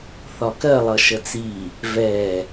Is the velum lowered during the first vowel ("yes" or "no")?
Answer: no